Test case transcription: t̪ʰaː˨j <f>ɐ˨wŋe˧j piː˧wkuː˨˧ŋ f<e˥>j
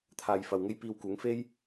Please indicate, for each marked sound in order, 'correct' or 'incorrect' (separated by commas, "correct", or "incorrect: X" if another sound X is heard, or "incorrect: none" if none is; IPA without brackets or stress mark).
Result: correct, correct